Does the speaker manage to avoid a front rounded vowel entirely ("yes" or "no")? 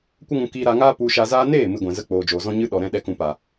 yes